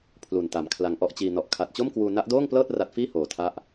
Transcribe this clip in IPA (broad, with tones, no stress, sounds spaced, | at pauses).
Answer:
pʰ l u˨˩ n t a˨˩ m kʰ l a˧ ŋ ʔ ɔ˥˩ ʔ t͡ɕ iː˧ n ɔ˨˩ ʔ kʰ a˨˩ t̚ t͡ɕ o˥˩ m k w uː˧ n a˦˥ ʔ d oː˥˩ ŋ p l ɤː˥˩ t̚ r a˦˥ t̚ f iː˥˩ h oː˨˩ tʰ a˦˥ ʔ